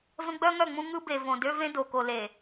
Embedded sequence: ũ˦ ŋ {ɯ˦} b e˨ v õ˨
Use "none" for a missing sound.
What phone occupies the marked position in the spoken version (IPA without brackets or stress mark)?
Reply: ɯ˦